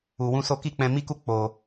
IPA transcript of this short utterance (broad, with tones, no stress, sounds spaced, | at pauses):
u˧ w ũ˦ s o˦ k i˦˨ k͡p ɛ̃˧ m i˦ k u˦ k͡p o˧